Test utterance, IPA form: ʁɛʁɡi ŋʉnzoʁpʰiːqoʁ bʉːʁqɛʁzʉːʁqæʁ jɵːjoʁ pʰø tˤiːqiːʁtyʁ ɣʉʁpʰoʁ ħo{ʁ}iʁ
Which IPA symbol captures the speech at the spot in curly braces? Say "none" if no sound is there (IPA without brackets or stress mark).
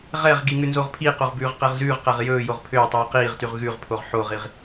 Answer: ʁ